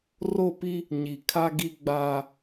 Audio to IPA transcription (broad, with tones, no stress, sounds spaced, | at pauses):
r o˦˨ p i˦ | ɲ i˨ kʰ a˦ ɡ i˦ ɡ͡b aː˦